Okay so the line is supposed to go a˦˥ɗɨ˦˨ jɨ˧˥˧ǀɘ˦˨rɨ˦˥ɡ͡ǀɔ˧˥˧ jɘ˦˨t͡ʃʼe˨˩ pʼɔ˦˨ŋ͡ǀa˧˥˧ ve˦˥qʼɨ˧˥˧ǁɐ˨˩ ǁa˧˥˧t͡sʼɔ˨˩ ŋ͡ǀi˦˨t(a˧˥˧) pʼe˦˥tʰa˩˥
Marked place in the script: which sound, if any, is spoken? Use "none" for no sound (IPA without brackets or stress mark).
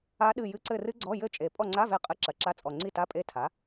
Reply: a˧˥˧